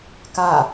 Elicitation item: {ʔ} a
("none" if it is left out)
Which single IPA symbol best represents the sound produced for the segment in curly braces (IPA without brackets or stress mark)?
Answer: k